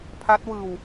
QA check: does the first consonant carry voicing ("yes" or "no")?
no